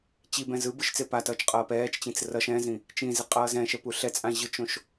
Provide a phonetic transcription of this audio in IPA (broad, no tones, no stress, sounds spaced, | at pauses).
t͡ɕ i b ɛ̃ z ɯ b ɯ ʃ t͡s e p a t ʌː t͡ʃ qʼ ʌː p ɛː t͡ʃ t͡ɕ ĩ t͡s r ʌ ʃ ɛ̃ z ĩ | t͡ʃ ĩ z i qʼ ʌː z ɛ̃ ʃ ɛ p u ɬ ɛ t͡sʼ ã ʑ ɯ t͡ʃ õ ʃ